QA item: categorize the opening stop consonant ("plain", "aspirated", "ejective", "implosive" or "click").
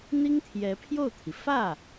aspirated